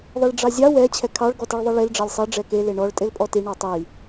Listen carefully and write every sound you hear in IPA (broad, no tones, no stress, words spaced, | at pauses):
ðˤiɭɖ͡ʐɑzʲɑ wɛ t͡ɕʰɛkʰɑɭ ɡɔteɭðˤɛɭel ɖ͡ʐɑlʲsˤɛ ɖ͡ʐɛke leɳɔɭ tʼelpʼɔti ɳɔtˤi